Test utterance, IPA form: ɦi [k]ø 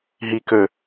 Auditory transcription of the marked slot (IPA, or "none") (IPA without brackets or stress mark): k